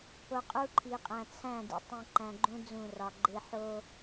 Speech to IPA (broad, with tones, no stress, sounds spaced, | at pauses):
p o˨ qʼ u˦ ǃʰ i˨ qʼ æ̃˨ t͡sʰ æ̃˦˨ d ḭ˨ tˤ ĩ˨ ǃ æ̃˨ ɡ͡ǃ ũ˦ d͡z ũ˦˨ r ɒ˨ ɡ͡ǃ e˦ ħ o˦